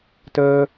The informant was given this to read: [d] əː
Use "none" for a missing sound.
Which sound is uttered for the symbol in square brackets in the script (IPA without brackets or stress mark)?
t